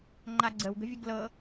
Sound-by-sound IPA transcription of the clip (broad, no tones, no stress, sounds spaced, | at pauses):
ŋ͡ǃ a ɡ͡ǀ ə w ɡ ə̤ vʲ ə ɡ l ɤ